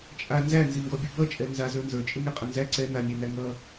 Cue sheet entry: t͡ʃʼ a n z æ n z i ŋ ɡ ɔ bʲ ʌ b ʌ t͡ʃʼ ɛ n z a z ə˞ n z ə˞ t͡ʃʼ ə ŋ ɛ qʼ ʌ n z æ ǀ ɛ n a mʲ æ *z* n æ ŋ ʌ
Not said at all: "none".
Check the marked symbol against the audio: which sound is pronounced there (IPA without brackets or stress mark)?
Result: none